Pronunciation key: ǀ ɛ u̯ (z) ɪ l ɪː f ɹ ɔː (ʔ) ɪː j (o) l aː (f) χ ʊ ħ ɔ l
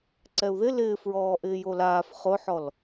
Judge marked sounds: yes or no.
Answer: no, yes, yes, yes

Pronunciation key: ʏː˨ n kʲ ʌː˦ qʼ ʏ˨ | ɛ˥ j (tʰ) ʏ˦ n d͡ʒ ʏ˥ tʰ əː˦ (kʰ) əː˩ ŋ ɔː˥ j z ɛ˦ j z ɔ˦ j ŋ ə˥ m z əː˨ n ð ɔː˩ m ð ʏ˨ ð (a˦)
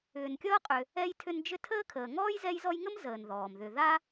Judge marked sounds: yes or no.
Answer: yes, yes, yes

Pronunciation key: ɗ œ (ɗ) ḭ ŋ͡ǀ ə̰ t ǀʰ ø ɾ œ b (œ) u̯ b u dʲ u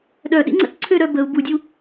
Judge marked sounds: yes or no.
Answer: yes, no

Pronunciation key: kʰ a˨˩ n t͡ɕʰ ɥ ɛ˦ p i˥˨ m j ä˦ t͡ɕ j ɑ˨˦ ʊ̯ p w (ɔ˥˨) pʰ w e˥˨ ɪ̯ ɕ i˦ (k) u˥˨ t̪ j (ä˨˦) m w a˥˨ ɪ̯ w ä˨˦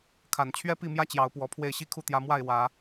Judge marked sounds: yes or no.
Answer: no, no, yes

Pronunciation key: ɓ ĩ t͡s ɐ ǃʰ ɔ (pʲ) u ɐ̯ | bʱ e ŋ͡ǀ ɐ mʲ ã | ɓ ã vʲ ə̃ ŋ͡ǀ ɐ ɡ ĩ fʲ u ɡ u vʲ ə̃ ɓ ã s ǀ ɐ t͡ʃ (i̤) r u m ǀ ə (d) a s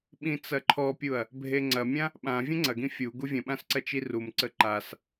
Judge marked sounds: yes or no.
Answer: yes, no, no

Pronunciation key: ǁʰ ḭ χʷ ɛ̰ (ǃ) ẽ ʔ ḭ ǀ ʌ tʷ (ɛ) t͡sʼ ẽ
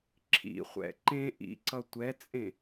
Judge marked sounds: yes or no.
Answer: yes, yes

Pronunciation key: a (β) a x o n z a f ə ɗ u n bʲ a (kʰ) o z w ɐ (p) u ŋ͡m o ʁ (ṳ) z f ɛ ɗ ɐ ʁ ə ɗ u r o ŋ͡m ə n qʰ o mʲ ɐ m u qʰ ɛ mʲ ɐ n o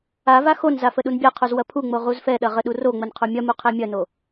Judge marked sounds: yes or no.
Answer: no, no, no, no

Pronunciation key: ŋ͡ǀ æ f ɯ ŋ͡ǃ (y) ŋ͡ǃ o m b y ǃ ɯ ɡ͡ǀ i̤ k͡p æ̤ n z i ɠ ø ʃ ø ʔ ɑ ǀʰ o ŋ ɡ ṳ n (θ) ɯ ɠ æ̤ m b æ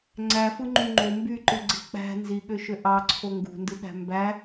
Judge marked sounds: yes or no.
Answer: yes, no

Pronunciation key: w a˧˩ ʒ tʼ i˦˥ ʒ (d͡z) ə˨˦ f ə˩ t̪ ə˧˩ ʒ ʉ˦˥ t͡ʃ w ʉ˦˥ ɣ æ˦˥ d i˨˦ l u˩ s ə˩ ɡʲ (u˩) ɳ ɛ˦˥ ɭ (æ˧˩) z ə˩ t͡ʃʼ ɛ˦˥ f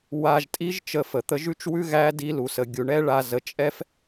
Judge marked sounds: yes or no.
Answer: no, yes, no

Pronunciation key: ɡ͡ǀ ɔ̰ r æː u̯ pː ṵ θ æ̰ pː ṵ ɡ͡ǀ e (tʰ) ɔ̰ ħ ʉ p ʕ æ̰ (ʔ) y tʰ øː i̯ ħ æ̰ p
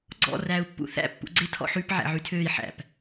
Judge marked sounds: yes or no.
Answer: yes, no

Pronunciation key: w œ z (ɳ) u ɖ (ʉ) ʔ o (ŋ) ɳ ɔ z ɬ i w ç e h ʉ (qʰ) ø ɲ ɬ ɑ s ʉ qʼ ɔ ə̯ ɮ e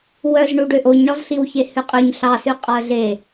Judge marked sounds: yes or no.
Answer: yes, no, no, no

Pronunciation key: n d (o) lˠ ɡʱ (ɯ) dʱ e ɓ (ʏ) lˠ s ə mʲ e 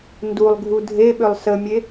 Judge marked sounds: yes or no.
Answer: no, no, yes

